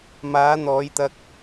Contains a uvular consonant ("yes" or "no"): no